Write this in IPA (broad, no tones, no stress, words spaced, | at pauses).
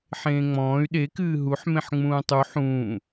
ħẽːŋ͡mɔ̃ːy̯ ɗekɨː ɦuħ mẽħŋ͡mũːtˤu ħũː